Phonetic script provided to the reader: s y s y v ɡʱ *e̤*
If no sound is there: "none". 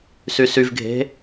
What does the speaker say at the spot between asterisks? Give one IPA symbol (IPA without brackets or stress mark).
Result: e̤